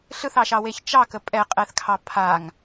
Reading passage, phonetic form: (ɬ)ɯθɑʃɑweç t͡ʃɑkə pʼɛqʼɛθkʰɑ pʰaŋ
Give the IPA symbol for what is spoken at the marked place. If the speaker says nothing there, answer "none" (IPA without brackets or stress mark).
ɬ